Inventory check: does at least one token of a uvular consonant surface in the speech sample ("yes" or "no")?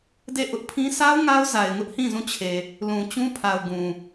no